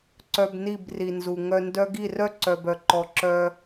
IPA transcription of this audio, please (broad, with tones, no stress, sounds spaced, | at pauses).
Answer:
ǀ œ˧ b n i˦˨ b r i˨ n z u˨ ŋ œ˧ n d œ˦ ɡ i˦˨ r œ˦ ǀ œ˨ b œ˨ ǃ ɔ˧ ǁ œ˦